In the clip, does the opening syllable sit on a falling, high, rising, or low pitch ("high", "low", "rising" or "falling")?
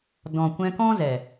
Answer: low